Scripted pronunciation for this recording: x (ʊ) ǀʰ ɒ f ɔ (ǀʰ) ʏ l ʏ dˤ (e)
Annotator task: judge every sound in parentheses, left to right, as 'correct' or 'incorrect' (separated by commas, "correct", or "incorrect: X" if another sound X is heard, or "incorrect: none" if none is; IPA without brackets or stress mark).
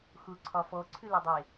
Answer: correct, correct, correct